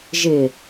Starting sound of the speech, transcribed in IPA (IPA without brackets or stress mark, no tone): ʒ